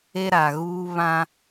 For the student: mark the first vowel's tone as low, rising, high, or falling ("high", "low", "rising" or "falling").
high